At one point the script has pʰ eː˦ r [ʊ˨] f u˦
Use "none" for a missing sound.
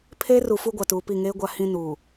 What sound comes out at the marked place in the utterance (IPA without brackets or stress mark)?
u˨